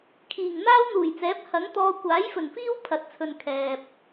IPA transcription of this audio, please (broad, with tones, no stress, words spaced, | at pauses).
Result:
kʰiː˨˩ŋn̪aː˥wn̪uː˨˩jt͡sɛː˨˥p̚ hɐ˨˥ŋt̪ɔː˧ kʷaː˨˥jfɵ˨˩nfiː˥w pʰɐ˧t̚t͡sʰɵ˧nkʰɛː˨p̚